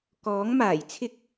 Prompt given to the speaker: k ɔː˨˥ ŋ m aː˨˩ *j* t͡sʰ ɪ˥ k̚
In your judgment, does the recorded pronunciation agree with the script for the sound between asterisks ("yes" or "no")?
yes